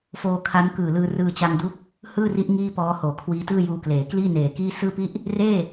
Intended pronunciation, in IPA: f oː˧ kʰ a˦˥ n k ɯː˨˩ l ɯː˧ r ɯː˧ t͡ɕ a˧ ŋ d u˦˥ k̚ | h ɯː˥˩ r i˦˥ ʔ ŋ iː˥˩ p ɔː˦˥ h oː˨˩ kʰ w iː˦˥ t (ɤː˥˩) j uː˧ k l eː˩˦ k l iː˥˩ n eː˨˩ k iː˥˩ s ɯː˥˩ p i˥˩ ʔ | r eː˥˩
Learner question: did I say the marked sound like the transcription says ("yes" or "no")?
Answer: no